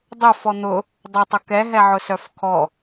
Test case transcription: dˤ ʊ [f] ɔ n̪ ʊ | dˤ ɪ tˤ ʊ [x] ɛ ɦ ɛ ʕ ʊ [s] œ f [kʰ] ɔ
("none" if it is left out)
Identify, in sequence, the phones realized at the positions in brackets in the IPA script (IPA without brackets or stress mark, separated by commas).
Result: f, k, s, kʰ